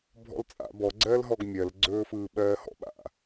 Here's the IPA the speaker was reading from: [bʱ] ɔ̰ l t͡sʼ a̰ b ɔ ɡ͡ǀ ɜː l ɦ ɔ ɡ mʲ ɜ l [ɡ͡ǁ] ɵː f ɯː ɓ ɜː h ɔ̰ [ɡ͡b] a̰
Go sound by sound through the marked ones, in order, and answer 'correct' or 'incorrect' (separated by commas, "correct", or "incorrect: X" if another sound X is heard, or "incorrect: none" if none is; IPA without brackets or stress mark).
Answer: correct, incorrect: ɡ͡ǀ, incorrect: ɓ